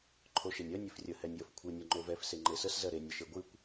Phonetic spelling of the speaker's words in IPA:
ǃʰ o ʃ e nʲ ɜ nʲ e f rʲ ə h ɛ nʲ j ə f kʷʰ ɨ nʲ o ŋ͡ǃ o v ɛ f s e ŋ͡ǃ e s ə s z ɜ ɾ e nʲ ə ʃ e ɡʷ ɨ kʷ

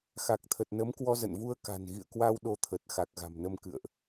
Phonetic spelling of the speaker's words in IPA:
x a˨˩ k̚ t̪ʰ ə˨˩ t̚ n ə˨˦ m k w ɔ˧ z ə̰˧˨ n v u˧ ə̯ k a̤˨˩ n ɣ ḭ˧˨ ə̯ k w a˧ w ɗ o˨˦ t̪ʰ ə˨˩ t̚ x a˨˩ k̚ ɣ a̤˨˩ m n ə˧ m k ɨ̰˧˨ ə̯ ʔ

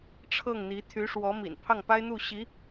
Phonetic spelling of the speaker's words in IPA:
ʈ͡ʂʰ ɤ˥˩ ŋ n̪ i˧˥ t̪ʰ y˧˥ ʂ w ɔ˧˥ m ḭ˨˩ n pʰ ɑ˥˩ ŋ p a˥ ɪ̯ n̪ u˥˩ ɕ i˧˥

